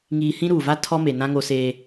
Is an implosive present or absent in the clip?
absent